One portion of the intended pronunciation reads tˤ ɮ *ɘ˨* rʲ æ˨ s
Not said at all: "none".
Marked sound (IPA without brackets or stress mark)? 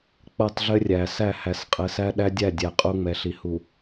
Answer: ɘ˦